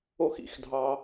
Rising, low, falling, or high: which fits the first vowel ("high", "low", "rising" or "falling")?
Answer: high